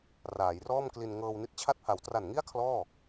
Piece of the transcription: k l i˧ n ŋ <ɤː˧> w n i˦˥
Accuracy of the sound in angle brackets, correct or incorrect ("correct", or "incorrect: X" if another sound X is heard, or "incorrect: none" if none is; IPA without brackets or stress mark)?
correct